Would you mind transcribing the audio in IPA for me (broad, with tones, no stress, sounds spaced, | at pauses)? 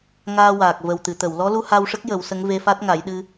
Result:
ŋ aː˧ w aː˨˩ k̚ v ə˨˩ w t̪ ɨ˨˩˨ t̪ ə˨˩˨ w l ɔ˧˥ l u˧ h a˧ w ʂ ə˦˥ k̚ j ə˨˩˦ w s ə˧˥ ŋ v e˧ f a˦˥ t̚ ŋ a˨˩˦ j ɗ ɨ˧